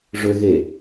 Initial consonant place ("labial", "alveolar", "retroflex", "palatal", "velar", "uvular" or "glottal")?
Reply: retroflex